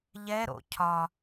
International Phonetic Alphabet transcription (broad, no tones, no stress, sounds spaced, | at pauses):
ʎ ɛ ɾ o̰ cʰ ɒ